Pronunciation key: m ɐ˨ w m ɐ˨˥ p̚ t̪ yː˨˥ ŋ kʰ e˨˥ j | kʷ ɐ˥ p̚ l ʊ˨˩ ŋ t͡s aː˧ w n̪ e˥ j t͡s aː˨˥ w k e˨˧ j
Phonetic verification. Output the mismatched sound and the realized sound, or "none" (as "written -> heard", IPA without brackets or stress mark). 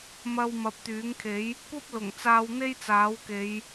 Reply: none